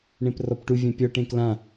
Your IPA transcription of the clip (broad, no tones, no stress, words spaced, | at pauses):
ɳẽprɔpʈu vʲãpʲɔ ʈẽklã